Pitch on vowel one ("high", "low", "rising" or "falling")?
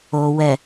low